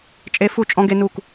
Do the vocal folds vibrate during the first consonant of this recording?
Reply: no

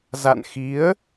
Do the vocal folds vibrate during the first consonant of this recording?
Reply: yes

